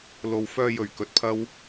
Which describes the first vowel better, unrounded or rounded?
rounded